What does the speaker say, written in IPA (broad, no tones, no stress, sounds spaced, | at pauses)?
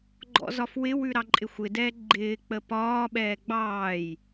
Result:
ɡ͡ǃ ɔ̰ z ɒ f w ɪ w ʉ ɾ ɑ ǃʼ ɪ xʷ ɪ d ɛː ɡ͡ǃ ɪː k͡p ə p ɒː ɓ ɛː ɡ͡b ɑː j